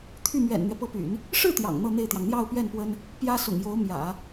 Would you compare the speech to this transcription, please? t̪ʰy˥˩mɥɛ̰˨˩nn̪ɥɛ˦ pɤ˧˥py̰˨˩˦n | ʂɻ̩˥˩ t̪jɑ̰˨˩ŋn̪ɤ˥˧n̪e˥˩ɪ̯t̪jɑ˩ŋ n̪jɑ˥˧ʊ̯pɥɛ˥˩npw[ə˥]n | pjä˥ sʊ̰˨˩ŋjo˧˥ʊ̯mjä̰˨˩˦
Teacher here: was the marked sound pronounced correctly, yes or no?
yes